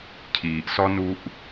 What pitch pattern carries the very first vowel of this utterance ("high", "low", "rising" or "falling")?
low